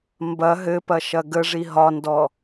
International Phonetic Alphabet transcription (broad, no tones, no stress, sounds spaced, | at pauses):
m b ɐ ɦ ɘ p ɐ ʃ ɐ ɡ ə ʐ i ɦ ɒ n d ɔ